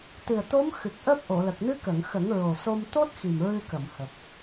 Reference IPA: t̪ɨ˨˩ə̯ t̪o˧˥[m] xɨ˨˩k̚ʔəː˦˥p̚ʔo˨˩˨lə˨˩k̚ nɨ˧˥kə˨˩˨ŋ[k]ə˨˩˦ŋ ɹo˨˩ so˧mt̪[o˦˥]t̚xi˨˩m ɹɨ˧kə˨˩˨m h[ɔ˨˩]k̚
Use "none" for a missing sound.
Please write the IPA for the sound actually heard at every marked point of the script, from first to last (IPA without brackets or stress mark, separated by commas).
m, x, o˦˥, ə˨˩